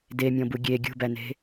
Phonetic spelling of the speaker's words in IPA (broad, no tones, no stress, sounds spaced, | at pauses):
d e mʲ ɔ̃ b u ɡʲ e ɡʲ ṳ b æ n e̤